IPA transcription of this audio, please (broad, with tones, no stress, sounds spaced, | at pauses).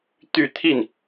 t̪ y˥˧ t̪ʰ i˥˩ n